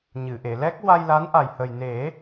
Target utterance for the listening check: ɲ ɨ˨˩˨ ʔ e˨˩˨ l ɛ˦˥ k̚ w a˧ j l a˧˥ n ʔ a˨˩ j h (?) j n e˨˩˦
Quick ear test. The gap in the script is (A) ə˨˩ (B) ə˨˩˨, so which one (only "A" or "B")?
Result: A